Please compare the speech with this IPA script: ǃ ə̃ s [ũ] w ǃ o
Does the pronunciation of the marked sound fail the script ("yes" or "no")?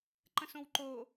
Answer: yes